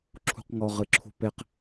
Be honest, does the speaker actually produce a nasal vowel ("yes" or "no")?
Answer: no